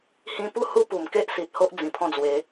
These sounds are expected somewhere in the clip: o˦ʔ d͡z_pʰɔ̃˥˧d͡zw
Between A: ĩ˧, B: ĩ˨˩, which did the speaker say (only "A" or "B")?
B